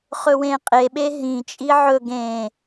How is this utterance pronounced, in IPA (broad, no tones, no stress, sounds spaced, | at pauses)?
χ ɵ w ẽ qʼ e ɓ e ɦ ĩ t͡ʃʼ i ʕ ɵ ɡ ẽ